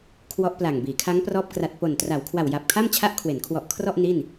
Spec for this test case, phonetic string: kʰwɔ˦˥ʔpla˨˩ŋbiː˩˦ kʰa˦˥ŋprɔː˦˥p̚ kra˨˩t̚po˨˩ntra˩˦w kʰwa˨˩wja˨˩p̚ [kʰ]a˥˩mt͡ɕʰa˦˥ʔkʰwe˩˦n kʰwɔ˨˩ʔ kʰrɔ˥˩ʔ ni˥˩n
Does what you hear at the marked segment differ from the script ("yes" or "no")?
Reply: no